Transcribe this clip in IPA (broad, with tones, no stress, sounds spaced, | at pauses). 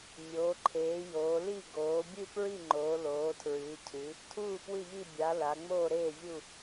mʲ oː˩˧ ǃʰ eː˩˧ j oː˩˧ l i˥˨ ɡ oː˩˧ bʲ ɨ˥˨ p ɹ i˥˨ ŋ͡ǃ oː˩˧ l oː˩˧ tʰ ɹ ɨː˩˧ cʰ ɨ˩˧ | tʰ uː˥˨ p w ɨ˥˨ ʎ i˥˨ bʲ a˩˧ l a˩˧ ŋ͡m oː˥˨ ɾ eː˥˨ vʲ u˥˨